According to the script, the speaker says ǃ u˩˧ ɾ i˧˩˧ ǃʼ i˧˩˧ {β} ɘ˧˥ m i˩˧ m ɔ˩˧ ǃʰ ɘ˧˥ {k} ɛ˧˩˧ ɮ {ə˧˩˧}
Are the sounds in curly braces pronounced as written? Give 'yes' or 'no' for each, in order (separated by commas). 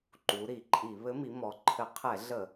yes, no, yes